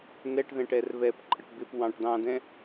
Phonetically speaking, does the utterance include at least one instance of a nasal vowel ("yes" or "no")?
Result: yes